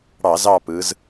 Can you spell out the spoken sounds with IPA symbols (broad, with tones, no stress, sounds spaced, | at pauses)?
ɽ ɑ˧˩˧ z ɑ˦˨ p ɯ˩˧ z